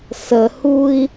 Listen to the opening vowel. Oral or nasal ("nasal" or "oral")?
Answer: oral